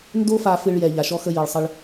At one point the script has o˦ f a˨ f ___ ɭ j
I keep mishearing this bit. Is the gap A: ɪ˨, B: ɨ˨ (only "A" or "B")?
B